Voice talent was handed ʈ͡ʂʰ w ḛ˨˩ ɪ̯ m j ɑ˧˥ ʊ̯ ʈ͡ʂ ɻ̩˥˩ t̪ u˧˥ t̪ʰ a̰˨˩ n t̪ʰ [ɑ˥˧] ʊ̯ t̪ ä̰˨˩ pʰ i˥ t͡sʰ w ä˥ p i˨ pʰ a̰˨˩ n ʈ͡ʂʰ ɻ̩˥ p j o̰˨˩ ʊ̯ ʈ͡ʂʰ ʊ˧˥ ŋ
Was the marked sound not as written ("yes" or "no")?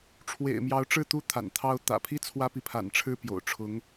yes